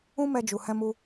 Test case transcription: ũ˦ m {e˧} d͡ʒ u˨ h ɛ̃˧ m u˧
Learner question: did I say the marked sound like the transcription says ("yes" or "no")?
no